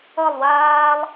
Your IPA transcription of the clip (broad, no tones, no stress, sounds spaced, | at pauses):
ʌ lˠ w aː lˠ